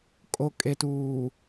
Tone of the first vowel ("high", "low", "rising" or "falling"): low